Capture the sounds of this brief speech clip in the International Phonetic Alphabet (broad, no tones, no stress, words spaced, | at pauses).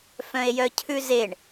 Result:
fœ̃e̯jœcʰʉzeɳ